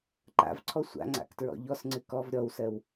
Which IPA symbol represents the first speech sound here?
ǃ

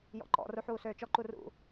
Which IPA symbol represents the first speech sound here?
j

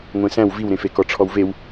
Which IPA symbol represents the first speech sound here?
ŋʷ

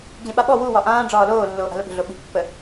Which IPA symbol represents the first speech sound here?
d͡ʑ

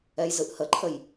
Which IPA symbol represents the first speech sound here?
ɛ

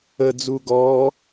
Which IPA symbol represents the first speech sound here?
ə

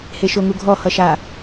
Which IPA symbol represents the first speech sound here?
h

